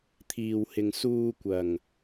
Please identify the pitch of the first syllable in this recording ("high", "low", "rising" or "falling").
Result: low